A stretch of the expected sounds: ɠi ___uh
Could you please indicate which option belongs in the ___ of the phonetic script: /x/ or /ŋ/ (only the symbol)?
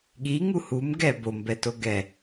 ŋ